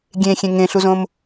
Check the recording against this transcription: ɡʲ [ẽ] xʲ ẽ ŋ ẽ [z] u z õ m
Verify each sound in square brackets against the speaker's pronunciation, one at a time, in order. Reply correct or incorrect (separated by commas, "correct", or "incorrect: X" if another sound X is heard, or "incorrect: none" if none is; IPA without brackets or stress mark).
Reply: correct, incorrect: ɬ